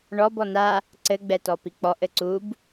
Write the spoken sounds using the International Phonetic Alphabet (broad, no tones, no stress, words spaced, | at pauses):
ɳɔb ɔna | ǀɘɡ͡bɛtɔ pik͡pɔʔ ɘǀub